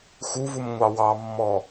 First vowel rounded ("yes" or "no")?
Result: yes